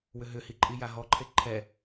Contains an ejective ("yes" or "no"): yes